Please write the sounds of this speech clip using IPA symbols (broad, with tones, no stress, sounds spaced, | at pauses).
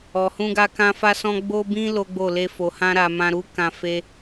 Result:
ɔ˨ h ũ˧ ɡ a˧ k ã˧ f a˧ s ɔ̃˧ ɡ͡b o˧ b ĩ˧ l o˦ ɡ͡b o˦˨ l e˧ f o˨ h ã˧ ɾ a˨ m ã˧ ɾ u˦ k ã˧ f e˦